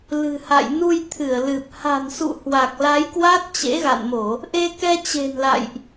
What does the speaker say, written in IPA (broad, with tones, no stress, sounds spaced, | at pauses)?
l ɨ̤˨˩ h a̰˧˨ j n u˧ j t̪ʰ ɨ˧˩ ə̯ l ɨ˨˩ p̚ h a̤˨˩ n s ṵ˧˨ h w a˨˩ k̚ l a˨˦ j k w a˦˥ t̚ t͡ɕ ḛ˧˥ ɣ a̰˧˨ n m o˧˩˨ | ʔ e˧ k ɛ˧ t͡ɕ e̤˨˩ n l a̰˧˨ j ʔ